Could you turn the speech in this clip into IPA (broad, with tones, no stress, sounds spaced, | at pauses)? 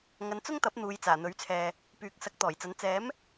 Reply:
ŋ ɐ˨˧ n t͡s ʊ˥ ŋ t̪ ɐ˨˥ p̚ n̪ uː˨˧ j t͡s aː˨˩ n̪ ɵ˨˥ ɥ t͡sʰ ɛː˨ | p yː˨˥ k̚ s ɐ˨˥ k̚ t̪ ɔː˨˩ j t͡s ɐ˨˥ n t͡s ɛː˨˥ m